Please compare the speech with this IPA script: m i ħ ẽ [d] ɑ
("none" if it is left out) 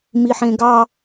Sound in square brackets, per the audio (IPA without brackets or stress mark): ɡ